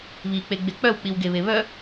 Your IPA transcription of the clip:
β i k͡p e ɡ͡b e k͡p œ w k͡p i w ɡ e β e β œ

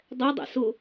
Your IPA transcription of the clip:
dˤ ɛ dˤ ɛ̰ s ʊ

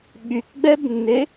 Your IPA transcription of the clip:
ɓ y k ɡ͡b ɛ b nː e

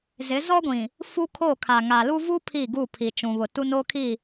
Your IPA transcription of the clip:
z ɪ˨˦ z ɔ˦ ɡʷ ĩ˨ | f u˦ kʰ o˦˨ kʰ a˨ ŋ a˨ l u˦ v u˦ pʰ i˦˨ ɡ u˦˨ pʰ i˨ t͡ʃ ũ˨ β ʊ˨ t u˦ n o˦ kʰ i˦˨

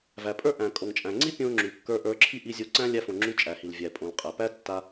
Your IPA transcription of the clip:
v æ˩ pʼ ə˞˥ ʔ æ̃˩ kʼ o˩ ŋ t͡ʃʼ æ̃˩ ŋ͡ǀ i˥ pʲ õ˧ ŋ͡ǁ y˩ kː ə˞˧ ʔ ə˞˧ ǁʰ i˥ ʔ i˧ zʲ o˧ ǀ æ̃˥ lʲ æ˧ f õ˩ ŋ͡ǁ y˧ t͡ʃʼ æ˩ h i˩ l vʲ æ˩ pʼ õ˩ l qʼ æ˩ p æ˥ tː a˧

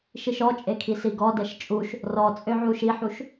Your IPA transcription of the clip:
ʃ i ʃ ɔ t͡ʃʼ e kʰ i s i ɡ ɔ d ɛ ʃ t͡ʃʼ u ʃ | r ɔ t͡sʼ ø ʕ u ʃ i ħ u ʃ

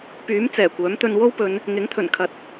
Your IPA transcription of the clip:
p yː˨˥ m t͡s ɛː˨˩ kʷ œː˨˥ m t̪ ɵ˧ n w o˥ w p ɵ˨˧ n | ŋ ɪ˨˥ ŋ t̪ʰ ɵ˨˩ n kʰ ɐ˨˥ t̚

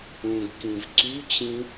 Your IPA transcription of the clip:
ũ ɡ k ĩ v ǀ y t͡ɕ ĩ

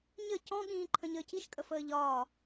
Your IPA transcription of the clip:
ɲ ə c ɔ̃ ɠ ĩː ǃʰ ə̃ ɲ əː c i ʃ kʼ ə f əː ʎ ɒː

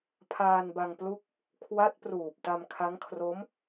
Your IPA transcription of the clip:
pʰ aː˧ n b a˧ ŋ p l u˦˥ k̚ | kʰ w a˦˥ t̚ p r uː˨˩ p̚ t a˧ m kʰ a˦˥ ŋ kʰ r o˦˥ m

